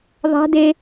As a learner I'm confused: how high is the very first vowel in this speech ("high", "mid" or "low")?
low